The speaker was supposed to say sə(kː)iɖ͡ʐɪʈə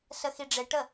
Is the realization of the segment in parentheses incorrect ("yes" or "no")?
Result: yes